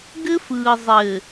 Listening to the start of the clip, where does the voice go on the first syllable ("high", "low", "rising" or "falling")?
high